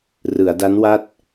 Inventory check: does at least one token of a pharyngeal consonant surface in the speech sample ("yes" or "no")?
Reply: no